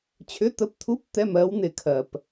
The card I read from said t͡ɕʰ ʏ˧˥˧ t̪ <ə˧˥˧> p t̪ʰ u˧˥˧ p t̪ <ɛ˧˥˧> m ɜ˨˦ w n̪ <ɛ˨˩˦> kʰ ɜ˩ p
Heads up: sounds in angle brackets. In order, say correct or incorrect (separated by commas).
correct, correct, incorrect